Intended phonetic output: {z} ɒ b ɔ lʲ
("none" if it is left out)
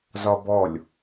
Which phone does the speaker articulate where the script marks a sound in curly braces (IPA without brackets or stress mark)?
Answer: z